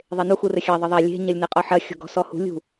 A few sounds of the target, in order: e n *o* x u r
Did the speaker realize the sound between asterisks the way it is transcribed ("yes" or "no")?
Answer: no